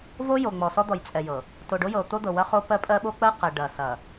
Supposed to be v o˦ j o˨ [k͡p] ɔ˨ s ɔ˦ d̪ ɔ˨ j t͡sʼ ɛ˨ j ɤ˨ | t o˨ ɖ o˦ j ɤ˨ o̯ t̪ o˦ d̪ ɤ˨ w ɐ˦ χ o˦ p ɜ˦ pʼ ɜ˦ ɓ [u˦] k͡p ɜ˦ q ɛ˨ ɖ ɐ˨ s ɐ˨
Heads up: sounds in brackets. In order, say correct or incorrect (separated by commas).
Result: incorrect, incorrect